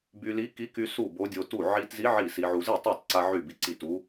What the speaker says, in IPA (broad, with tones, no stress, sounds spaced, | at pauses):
b y˧ l i˧˥ k i˧˥ k y˧ s u˥˩ b o˧˥ dʲ o˧ t u˥˩ ʕ i˧ t z i˧˥ ʕ i˥˩ s i˧ ʕ u˧ z i˥˩ tˤ i˥˩ tˤ ǀ a˧ ʕ y˥˩ b i˧˥ ǀ i˥˩ t u˧˥